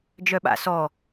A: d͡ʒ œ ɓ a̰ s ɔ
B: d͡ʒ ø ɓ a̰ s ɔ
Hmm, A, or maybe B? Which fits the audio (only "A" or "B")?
A